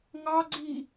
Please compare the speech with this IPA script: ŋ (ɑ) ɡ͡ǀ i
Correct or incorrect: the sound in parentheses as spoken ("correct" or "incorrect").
correct